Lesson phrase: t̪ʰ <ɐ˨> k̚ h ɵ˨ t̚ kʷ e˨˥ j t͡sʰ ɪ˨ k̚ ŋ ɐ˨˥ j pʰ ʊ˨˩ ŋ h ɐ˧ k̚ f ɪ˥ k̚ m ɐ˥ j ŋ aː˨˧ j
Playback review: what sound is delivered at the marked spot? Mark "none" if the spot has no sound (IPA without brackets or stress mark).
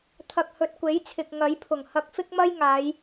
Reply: ɐ˨